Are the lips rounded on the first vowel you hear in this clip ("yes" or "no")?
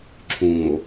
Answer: yes